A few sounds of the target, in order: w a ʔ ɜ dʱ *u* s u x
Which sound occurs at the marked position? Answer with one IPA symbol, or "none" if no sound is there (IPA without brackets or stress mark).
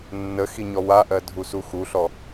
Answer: u